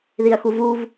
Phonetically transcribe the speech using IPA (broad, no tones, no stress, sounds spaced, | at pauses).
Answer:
ð i ɐ̯ x u v u v